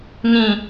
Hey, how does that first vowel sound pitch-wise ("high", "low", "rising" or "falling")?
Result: low